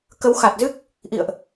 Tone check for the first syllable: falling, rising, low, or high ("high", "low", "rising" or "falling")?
rising